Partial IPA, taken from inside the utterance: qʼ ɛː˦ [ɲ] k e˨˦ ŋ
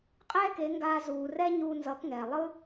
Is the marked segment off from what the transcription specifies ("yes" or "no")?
yes